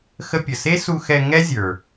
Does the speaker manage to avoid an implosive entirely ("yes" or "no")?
yes